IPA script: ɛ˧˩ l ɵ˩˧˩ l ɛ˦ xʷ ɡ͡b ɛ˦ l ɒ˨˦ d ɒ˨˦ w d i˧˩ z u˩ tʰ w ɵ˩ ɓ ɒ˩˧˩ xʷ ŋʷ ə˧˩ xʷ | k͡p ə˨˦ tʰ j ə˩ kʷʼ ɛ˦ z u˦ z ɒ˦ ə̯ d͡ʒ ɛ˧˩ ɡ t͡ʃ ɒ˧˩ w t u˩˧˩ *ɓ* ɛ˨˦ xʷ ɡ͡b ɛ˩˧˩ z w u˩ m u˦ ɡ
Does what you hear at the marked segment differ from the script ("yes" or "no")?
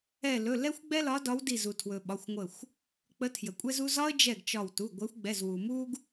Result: yes